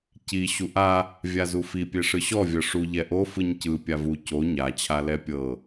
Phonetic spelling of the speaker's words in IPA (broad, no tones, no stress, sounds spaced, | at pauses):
c i ɕ u ʔ a | vʲ a z u f i pʲ e ʂ ɯ ɕ ɔ vʲ ɤ ʂ u ʎ ɛ ʔ o f ɯ ɲ c ɯ pʲ a v u c o ɲ a t͡ɕʰ a l ɛ pʲ ɤ